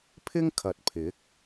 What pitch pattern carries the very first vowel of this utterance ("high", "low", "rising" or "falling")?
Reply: high